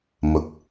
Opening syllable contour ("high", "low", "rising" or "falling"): low